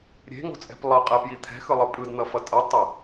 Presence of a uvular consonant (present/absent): present